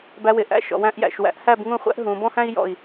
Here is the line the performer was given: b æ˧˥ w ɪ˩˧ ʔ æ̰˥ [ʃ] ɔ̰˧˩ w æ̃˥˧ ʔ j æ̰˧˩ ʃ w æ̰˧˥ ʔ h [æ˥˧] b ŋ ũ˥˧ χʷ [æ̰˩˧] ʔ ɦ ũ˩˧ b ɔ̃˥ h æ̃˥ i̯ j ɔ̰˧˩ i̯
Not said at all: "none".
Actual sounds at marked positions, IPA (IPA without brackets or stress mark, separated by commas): ʃ, æ˥˧, æ̰˥